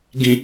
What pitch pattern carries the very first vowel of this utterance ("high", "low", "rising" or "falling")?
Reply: low